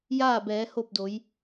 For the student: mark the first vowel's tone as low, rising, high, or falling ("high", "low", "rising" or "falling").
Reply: falling